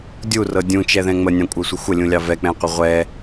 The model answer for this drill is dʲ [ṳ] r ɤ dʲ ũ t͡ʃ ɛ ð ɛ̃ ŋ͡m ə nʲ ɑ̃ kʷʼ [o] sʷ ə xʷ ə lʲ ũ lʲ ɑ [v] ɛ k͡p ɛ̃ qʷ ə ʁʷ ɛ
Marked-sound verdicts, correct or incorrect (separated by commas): incorrect, incorrect, correct